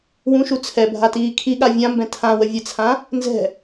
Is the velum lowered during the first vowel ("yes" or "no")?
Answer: yes